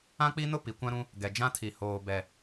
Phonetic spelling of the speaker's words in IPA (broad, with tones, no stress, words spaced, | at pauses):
ã˦k͡pi˦nʊ˦ pi˨kʷã˦ɾũ˦ | ɡɛ˨d͡ʒã˦tʰi˨ hoː˨bɛ˨